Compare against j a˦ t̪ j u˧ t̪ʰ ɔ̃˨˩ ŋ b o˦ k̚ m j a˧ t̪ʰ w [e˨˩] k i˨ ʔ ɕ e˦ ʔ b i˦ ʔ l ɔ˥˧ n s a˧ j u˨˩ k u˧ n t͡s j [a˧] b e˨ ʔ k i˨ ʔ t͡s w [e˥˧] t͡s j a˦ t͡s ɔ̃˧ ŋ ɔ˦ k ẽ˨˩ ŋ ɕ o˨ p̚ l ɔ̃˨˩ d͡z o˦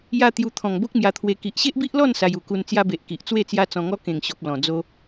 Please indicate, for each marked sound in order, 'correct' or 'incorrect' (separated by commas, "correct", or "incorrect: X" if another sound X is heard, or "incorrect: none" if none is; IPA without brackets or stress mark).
incorrect: e˧, correct, correct